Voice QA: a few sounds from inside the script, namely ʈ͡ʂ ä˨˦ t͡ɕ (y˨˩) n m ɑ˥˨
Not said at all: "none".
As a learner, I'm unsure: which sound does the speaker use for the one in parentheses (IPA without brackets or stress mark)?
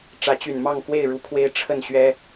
y˨˩